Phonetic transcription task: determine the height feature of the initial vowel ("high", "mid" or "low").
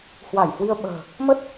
low